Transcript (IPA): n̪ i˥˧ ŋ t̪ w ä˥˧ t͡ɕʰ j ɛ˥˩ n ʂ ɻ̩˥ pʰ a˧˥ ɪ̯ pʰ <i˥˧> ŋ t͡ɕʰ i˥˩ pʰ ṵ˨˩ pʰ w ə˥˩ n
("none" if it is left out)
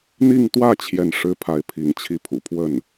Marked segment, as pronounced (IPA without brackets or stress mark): i˧˥